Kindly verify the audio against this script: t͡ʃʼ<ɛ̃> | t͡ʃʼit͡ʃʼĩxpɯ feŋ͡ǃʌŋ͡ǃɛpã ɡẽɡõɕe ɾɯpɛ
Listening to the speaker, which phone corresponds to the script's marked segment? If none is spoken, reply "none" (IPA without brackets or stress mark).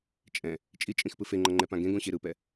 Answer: ɛ̃